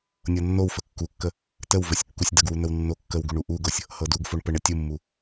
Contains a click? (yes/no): no